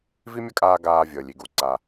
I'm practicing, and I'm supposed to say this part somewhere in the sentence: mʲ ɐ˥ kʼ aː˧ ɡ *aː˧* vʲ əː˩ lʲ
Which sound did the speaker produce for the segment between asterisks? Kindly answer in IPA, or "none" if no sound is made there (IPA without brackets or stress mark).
aː˧